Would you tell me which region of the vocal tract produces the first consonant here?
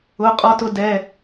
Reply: uvula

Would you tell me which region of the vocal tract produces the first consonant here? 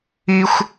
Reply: velum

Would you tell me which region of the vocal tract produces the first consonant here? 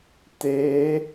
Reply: tongue tip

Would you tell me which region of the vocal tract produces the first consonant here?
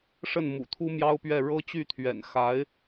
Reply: retroflex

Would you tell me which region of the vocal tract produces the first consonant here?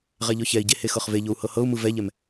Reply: uvula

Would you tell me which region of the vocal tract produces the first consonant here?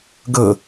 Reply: velum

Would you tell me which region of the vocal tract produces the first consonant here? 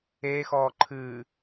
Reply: velum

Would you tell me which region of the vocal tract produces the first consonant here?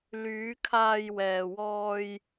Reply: tongue tip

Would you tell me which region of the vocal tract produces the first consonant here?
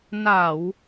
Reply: tongue tip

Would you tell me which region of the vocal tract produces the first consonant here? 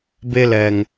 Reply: lips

